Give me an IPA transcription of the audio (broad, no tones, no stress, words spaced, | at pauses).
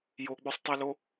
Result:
joɡ͡bøsˤtˤolo